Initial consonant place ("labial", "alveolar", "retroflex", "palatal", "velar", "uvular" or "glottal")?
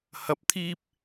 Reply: glottal